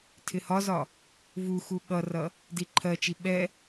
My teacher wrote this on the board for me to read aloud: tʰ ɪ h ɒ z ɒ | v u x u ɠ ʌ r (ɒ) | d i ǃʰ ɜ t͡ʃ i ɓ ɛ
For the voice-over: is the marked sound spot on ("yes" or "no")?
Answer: no